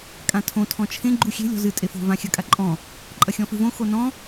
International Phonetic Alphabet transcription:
kʼ ã tʰ õ tʰ ɔ̃ t͡ʃʰ ẽ ɡ͡ǃ u xʲ e̤ lʲ ɔ̤ z ɨ tʼ e f o̤ v ã xʲ ɐ kʼ a ǃʼ ɔ̃ | ǃʼ ɐ xʲ ɔ̃ f ɨ v õ x o n ɔ̃

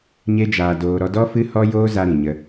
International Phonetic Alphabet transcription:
ɲ e˦ d͡ʒ aː˧ d oː˧ ɾ ɔ˧ d ɔ˦ f ɨ˦ h ɔ˦ j oː˦ z a˧ ɾ ĩ˨ ɲ ə˧

